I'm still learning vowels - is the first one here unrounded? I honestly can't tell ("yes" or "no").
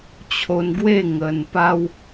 no